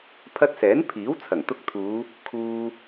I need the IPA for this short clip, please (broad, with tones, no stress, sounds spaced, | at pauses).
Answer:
pʰ ɐ˧ t̚ s ɛː˨˥ n pʰ iː˨˥ w t͡sʰ ɐ˨˩ ŋ t̪ ʊ˧ k̚ t̪ʰ uː˨˧ | kʰ uː˧